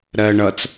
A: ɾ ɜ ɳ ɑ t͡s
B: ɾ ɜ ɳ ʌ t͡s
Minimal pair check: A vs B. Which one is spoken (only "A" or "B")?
B